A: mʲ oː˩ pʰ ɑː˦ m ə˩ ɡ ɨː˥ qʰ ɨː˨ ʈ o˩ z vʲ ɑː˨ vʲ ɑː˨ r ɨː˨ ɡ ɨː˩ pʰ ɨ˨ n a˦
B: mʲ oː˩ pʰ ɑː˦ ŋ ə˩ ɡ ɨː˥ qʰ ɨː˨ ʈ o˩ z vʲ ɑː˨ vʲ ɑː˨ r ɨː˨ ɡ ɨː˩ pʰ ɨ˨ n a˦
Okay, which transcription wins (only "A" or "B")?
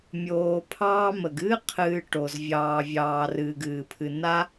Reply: A